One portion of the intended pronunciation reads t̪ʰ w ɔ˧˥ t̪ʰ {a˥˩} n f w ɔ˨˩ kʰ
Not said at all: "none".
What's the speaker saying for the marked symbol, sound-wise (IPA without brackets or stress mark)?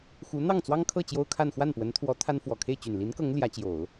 a˥